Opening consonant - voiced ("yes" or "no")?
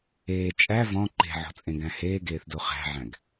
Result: no